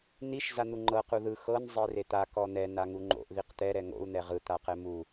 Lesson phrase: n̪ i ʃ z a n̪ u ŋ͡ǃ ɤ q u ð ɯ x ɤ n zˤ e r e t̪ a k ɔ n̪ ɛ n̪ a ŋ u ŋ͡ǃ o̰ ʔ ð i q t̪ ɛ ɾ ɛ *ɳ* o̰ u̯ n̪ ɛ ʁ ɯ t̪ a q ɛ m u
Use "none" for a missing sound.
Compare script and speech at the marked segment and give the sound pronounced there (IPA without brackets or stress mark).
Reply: ŋ